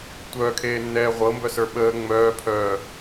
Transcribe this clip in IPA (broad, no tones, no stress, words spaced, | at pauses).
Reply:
tʷœːkʰeːnːɛː ʁʷɤmbœsə˞ ɓəː ŋ͡mœːpʰœː